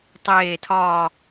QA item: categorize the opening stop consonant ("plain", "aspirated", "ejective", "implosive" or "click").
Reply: plain